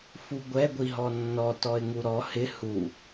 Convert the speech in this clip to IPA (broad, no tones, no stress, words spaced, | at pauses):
fuɡʷɛ ɡʷiɦɔnːɔ tɔɪ̯ŋuɾɔ hɪ hu